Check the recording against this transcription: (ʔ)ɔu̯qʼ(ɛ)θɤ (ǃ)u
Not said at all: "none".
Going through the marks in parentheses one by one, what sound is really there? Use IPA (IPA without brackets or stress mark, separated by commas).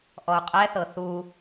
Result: ʔ, ɛ, θ